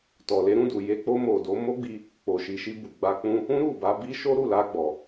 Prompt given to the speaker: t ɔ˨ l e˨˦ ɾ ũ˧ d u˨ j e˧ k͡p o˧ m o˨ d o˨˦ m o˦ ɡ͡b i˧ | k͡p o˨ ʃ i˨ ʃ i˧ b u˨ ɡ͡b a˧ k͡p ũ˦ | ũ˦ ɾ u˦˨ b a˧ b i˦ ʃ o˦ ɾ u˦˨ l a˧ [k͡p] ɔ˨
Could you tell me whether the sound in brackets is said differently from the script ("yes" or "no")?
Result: yes